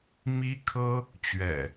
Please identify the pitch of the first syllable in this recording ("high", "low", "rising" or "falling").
high